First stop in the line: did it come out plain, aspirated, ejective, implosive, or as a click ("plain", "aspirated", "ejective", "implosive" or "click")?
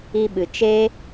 implosive